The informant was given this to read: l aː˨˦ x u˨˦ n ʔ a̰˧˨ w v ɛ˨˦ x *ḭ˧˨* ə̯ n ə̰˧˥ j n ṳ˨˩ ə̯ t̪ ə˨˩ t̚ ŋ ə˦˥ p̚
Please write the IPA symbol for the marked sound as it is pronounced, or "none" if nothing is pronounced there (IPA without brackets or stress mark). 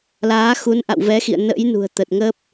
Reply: ḭ˧˨